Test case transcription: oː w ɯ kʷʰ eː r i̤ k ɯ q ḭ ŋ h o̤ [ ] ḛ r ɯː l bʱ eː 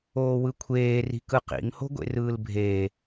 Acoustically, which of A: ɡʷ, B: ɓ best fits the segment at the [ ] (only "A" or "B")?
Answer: A